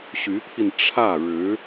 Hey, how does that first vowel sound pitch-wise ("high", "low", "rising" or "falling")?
rising